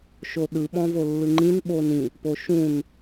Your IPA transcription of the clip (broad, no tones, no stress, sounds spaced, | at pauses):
ʃ o ɗ ɯ ɓ ɔ̃ v o lː ɯ ŋ͡ǃ ĩ n ɓ o n ĩ | p o ʃ ũ n